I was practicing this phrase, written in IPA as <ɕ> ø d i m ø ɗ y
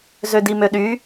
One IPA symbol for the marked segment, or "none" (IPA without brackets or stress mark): z